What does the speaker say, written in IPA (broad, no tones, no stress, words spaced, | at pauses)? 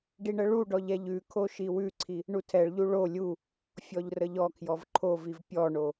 ɖiɳəɭuɖɔʎ ɛʎʉkʰo ʃiwʉǀʰi | ɳutʰɛɭʎu ɭo lʲu | fʲɔʎrəʎɔkʰjɔv ǃʰoviv pʲɔɳo